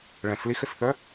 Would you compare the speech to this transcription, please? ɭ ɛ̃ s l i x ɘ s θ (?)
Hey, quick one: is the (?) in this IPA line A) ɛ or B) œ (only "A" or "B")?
B